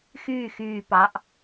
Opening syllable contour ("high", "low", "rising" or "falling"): falling